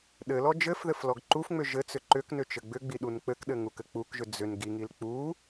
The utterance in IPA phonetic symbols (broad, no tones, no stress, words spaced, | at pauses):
ɗɘlɔ d͡ʒɘfðɘf lɔɡǃufŋ͡mʏ ʒɘt͡sʏ ǃʏknʏ t͡ʃɘɡ͡bʏɡ͡bi ɗunk͡pɘkɗɘ ŋukɘk͡pukʒʏ d͡zʏn ɡiŋil k͡pu